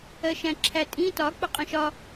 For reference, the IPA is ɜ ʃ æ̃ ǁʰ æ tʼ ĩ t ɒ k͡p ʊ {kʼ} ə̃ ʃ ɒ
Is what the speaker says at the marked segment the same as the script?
no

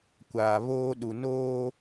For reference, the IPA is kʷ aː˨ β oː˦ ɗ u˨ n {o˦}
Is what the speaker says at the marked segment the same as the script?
no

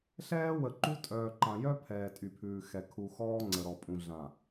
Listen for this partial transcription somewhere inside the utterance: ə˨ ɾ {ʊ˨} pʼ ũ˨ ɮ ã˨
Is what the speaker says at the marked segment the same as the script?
no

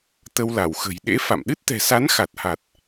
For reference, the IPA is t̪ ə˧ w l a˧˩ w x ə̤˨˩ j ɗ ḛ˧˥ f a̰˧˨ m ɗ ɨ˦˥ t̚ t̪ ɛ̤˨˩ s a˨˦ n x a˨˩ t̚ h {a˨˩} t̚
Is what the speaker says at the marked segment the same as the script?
yes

